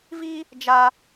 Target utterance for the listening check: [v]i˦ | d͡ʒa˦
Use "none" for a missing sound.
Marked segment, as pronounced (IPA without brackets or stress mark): v